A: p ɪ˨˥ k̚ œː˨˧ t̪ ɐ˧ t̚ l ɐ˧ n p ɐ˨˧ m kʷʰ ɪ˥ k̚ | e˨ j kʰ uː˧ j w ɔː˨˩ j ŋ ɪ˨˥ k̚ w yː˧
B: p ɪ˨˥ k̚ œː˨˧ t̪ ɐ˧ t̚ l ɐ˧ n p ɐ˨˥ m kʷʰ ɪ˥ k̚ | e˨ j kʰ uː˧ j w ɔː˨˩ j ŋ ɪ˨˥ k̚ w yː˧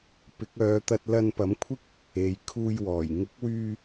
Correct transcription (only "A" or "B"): B